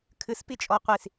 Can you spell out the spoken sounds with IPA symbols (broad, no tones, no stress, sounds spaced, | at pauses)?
kʰ ɨ s p i t͡ʃʼ ɔ qʷ i s